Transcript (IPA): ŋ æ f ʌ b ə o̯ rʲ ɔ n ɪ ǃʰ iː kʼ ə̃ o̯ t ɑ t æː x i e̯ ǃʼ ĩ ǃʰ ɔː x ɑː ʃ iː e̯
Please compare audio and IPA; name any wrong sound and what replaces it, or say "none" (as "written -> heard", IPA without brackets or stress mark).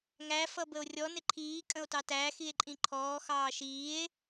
none